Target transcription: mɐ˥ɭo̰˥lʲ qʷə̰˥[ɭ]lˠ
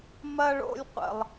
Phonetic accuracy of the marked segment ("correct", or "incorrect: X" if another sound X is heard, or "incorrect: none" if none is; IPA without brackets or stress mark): incorrect: none